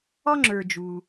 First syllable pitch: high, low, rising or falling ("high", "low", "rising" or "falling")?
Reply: high